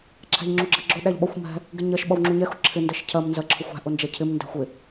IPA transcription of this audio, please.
ǁʰæ̤ʎŋ͡ǁuɡ͡ǁɜɡ͡ǁʊ ɗæʎɓʌxʷ mɛ̤ | ɡɪɲɜʃ ɓʌwŋ͡ǁuɲɛ xʊǁʰɪ ndɜʃcʰɜm nzɜǁʰʊxʷæ̤ ʔʊnd͡ʒɛcʰɪm ndæ̤xʷɪ

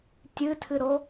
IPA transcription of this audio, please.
tʲɨtʰɨɾo

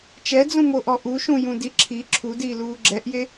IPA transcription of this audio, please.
t͡ʃɛd͡zũmoʔɔ ʔuʃũjũdi ǁʰi ǁʰudiːluː ɡ͡ǁɛʔje

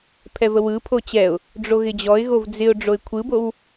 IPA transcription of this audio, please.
pʰɛvəwɯpʰo t͡ɕɛʊ̯ | ɖ͡ʐoɣɪd͡ʑɔɪ̯ɣov d͡zɪʊ̯ ɖ͡ʐoɪ̯kʷʰɯbow

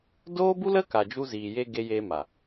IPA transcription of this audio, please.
doː˦bu˦lə˦ ka˨d͡ʒu˧ziː˨je˧ ɡe˧ jeː˧ma˨

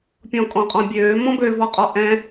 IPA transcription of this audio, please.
pʲɔ̃kʼɔ̃qʼɔ̃bʲøː mɔ̃bø vɔqʼɔʔɛ̃

